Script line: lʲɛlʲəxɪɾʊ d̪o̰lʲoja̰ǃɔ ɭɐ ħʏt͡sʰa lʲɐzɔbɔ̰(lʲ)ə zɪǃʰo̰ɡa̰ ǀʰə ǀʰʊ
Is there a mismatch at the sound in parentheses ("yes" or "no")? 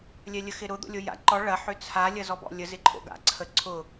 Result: no